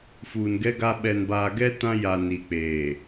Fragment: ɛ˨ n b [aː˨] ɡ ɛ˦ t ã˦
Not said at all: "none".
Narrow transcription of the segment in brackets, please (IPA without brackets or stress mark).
aː˨